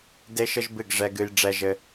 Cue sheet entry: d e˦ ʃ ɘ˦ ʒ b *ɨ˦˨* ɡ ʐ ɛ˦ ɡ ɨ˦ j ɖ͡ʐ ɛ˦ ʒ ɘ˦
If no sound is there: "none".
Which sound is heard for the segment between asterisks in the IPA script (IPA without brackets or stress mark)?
ɨ˦˨